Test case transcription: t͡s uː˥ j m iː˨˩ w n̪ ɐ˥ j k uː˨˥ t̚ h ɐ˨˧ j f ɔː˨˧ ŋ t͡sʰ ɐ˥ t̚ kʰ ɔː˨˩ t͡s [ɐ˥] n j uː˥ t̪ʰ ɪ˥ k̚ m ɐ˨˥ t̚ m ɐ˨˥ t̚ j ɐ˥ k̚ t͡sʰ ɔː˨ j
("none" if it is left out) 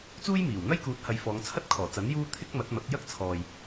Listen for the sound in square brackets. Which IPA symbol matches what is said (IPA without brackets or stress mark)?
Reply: ɐ˨˥